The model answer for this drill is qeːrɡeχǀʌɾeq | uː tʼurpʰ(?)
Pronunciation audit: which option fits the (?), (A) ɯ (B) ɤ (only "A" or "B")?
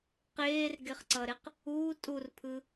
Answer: A